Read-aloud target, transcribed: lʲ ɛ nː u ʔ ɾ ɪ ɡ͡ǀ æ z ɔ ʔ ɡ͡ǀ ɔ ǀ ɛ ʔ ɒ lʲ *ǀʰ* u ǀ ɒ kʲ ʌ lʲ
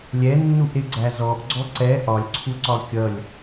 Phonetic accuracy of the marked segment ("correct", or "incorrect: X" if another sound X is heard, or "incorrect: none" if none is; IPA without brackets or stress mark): correct